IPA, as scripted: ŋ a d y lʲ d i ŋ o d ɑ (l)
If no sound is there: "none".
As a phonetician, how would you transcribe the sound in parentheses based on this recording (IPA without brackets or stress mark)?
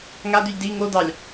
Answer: lʲ